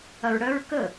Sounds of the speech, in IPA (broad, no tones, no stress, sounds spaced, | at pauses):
ɐ ɹ ɽ œ ɹ k ə